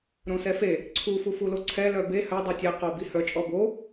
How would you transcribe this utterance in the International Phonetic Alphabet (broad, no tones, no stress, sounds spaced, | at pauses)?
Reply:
ɾ õ s ɛ f e | ǀʰ u f u f u l o ǀʰ ɛ l œ b e h œ dˤ œ tʲ ɛ q o b i h œ t͡ʃʼ ɔ b o